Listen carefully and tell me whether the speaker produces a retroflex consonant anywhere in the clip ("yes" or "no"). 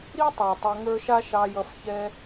no